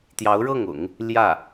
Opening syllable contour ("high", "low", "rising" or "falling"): rising